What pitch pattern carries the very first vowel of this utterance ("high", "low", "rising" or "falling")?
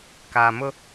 low